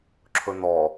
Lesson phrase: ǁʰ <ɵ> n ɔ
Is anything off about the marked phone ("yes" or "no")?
no